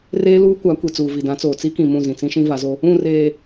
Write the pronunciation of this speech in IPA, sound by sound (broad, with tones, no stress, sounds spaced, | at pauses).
r eː˦ l uː˦ kʷ a˨˦ kʷ i˨ t͡s uː˨ v i˨ d ã˨˦ t͡s oː˨ t͡s i˦ k ĩ˨ m ũ˦˨ z ĩ˨ t͡s ĩ˦ ʃ ĩ˦ v a˨˦ z o˦ | ũ˦˨ r eː˨